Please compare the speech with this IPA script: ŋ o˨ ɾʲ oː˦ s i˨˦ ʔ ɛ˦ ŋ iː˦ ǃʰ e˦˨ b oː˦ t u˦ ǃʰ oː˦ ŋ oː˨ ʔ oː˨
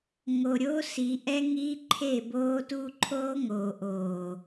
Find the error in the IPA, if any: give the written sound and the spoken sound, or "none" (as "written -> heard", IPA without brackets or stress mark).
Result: none